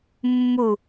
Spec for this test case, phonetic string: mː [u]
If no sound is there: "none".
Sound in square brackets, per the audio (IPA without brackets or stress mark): u